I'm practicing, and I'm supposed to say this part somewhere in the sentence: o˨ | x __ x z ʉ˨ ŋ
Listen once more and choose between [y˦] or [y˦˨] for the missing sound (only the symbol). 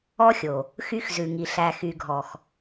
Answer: y˦